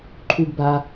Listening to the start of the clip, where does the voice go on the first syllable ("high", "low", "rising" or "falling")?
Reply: low